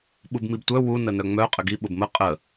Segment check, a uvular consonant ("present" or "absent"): present